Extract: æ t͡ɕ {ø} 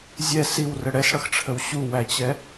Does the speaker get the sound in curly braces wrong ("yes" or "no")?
yes